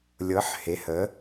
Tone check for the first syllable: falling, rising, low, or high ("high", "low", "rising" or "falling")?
rising